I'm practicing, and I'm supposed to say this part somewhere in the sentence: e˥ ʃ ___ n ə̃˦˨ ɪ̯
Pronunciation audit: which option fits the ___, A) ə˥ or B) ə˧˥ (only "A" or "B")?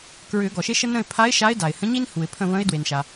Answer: A